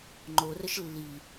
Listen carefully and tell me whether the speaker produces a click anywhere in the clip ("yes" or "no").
yes